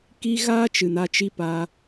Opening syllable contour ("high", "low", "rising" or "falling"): high